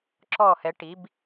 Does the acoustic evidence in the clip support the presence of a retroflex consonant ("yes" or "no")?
yes